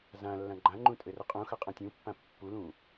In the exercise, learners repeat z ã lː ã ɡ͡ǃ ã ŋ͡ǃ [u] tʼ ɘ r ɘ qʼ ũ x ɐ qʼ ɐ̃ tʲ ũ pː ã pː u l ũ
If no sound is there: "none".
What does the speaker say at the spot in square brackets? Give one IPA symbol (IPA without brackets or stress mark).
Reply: ũ